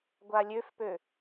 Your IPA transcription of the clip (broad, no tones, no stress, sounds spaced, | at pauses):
ɡʷ a lʲ ø f p ø